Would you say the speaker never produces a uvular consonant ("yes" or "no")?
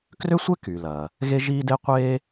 no